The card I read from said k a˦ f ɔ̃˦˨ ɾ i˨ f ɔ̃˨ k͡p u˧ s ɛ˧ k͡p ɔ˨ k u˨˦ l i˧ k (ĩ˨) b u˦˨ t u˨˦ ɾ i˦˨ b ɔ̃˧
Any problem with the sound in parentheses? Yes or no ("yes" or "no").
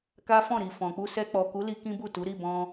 yes